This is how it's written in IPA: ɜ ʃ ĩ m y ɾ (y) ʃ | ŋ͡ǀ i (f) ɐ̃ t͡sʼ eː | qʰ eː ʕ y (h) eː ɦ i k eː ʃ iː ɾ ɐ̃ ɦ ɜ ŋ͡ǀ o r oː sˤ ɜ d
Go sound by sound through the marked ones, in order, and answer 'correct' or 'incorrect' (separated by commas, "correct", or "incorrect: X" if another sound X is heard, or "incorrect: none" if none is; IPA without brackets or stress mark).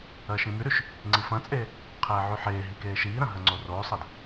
correct, correct, incorrect: ħ